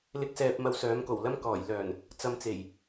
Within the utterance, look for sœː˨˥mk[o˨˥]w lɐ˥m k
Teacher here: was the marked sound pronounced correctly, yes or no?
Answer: no